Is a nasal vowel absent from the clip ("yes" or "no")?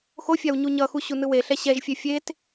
yes